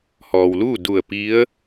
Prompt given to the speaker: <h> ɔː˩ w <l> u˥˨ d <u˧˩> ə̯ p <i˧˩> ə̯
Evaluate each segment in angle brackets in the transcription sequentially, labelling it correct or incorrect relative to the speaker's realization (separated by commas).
correct, correct, correct, incorrect